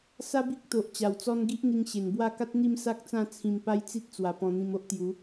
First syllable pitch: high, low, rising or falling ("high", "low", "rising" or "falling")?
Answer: high